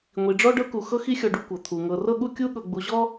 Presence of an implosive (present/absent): present